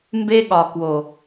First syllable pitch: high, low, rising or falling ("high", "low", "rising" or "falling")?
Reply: high